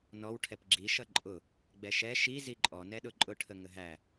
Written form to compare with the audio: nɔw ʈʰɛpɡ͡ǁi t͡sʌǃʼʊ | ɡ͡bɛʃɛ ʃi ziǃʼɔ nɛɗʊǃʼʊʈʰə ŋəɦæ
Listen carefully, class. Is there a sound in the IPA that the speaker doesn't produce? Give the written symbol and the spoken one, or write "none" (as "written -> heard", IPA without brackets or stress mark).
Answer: t͡s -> ʃ